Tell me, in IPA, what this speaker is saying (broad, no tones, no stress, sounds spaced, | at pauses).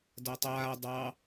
d a tˤ aː dˤ ɑ